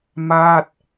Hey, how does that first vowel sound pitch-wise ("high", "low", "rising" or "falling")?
falling